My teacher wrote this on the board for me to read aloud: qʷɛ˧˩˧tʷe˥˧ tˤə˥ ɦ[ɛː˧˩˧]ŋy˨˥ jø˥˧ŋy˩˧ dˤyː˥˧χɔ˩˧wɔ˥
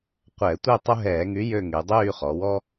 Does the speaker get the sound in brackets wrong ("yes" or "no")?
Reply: no